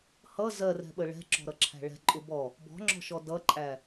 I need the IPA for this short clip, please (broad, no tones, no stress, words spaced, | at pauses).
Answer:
hʌ zɜrɛ̤ɓə ɭɛ̤ǁɔ̤ɾʌǁʰæ̤ ɭɛ̤ǃʼʊ bɔ | bɔ̤ŋ͡ǁɔ̤ʃɔ dʌǃʼæ